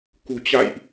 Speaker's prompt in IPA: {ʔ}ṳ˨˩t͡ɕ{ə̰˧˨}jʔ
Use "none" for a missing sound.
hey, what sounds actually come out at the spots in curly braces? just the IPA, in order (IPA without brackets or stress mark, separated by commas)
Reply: k, a̰˧˨